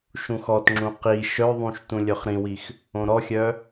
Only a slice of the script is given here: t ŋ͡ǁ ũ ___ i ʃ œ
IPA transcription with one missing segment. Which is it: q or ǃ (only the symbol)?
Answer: q